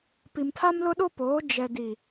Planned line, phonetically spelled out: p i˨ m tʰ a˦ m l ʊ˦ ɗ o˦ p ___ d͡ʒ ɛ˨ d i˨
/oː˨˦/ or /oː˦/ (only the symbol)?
oː˨˦